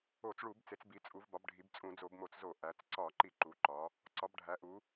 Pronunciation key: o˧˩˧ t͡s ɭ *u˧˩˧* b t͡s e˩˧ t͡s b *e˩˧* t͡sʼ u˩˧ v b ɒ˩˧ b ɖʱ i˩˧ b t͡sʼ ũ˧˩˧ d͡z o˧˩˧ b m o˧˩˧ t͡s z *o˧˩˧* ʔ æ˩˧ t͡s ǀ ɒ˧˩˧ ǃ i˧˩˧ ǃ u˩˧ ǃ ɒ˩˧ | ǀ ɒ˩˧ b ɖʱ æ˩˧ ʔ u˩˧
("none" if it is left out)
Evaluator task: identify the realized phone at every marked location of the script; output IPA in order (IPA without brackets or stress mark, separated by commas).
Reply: u˧˩˧, i˩˧, o˧˩˧